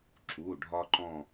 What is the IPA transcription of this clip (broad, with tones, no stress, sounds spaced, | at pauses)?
ǁ u˩˧˩ ɖʱ ɒ˦ ǃ ɔ̃˦˨